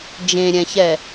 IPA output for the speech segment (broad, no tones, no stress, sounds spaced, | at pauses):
d͡ʒ ẽ ɾʲ ɛ̃ ç ɛ